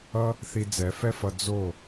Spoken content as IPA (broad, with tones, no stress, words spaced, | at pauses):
ʌ˦ | θi˧d͡zɛ˨˦fɛ˦fʌ˧ d͡zo˦˨